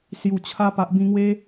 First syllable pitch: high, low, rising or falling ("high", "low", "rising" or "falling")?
low